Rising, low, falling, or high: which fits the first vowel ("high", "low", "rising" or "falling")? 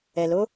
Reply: low